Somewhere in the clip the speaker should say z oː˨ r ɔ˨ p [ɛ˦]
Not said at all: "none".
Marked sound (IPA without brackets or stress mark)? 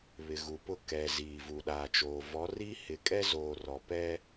ɛ˦